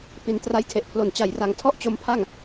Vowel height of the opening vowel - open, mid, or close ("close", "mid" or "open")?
close